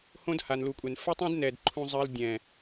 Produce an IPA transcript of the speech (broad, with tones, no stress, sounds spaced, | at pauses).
h õ˦ d h a˨ n l u˨ kʷʼ ɛ˨ n f ɵ˦ tˤ õ˦ d n ɛ˨ d ǃʰ ũ˧ zˤ ɜ˧ l dʲ ɛ̃˨